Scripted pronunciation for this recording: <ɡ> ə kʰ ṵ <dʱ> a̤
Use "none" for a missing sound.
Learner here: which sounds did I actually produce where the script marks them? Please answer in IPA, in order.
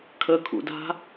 kʰ, d

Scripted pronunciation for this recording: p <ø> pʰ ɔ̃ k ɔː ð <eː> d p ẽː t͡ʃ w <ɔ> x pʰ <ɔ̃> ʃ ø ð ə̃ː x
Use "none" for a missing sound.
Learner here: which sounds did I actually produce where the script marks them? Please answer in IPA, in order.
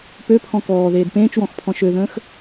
ø, eː, ɔ̃, ɔ̃

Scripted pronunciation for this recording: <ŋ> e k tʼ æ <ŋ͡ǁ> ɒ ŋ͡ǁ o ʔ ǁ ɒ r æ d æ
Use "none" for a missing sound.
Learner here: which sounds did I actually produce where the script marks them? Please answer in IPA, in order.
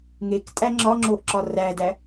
ŋ, ŋ͡ǁ

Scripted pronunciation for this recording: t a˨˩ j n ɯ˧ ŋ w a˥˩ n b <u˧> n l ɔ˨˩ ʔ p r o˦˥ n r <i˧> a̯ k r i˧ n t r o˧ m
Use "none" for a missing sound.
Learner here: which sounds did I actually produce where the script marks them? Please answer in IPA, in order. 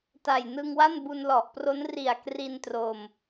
u˧, i˨˩

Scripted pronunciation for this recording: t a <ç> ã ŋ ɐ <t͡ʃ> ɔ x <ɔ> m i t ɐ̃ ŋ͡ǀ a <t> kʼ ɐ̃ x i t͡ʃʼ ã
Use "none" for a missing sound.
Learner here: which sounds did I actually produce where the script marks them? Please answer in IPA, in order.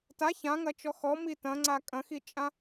ç, t͡ʃ, ɔ, none

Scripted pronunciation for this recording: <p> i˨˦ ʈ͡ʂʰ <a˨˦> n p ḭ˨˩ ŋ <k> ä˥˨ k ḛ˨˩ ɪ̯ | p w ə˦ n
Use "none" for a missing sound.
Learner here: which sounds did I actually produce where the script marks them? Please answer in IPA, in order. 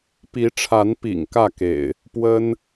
p, a˨˦, k

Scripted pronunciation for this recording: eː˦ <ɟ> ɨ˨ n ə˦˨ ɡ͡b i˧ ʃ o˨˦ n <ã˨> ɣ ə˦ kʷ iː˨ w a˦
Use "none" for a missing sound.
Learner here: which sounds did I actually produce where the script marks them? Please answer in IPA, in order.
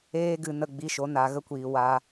ɡ, a˨

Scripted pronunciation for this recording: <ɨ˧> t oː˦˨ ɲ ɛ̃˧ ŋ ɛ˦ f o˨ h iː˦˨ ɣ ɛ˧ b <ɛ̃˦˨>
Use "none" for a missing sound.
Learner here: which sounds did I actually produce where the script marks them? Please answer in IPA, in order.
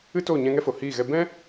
ɨ˦, ɛ̃˦

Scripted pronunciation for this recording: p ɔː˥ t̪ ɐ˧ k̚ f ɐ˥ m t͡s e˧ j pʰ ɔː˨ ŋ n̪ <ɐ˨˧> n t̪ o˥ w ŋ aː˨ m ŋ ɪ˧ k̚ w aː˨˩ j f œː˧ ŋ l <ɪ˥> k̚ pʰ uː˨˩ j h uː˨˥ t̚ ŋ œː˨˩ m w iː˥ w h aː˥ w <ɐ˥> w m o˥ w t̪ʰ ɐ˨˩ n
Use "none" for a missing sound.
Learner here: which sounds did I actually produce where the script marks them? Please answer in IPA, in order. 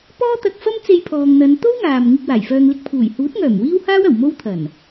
ɐ˨˧, ɪ˧, ɐ˨˩

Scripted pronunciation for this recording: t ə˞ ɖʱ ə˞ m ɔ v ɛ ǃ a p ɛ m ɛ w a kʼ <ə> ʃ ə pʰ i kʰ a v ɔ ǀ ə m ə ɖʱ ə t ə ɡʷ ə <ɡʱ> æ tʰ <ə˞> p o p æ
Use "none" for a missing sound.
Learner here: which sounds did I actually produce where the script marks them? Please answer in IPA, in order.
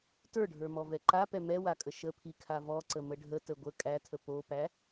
ə, kʼ, ə

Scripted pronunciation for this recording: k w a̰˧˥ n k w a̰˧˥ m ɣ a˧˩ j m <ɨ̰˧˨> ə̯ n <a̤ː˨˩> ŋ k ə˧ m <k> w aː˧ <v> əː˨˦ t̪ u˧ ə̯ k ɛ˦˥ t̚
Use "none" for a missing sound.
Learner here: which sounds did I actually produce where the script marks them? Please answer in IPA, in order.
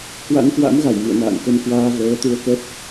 ɨ̰˧˨, a̰ː˧˨, k, v

